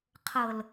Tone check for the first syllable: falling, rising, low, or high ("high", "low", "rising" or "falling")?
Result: low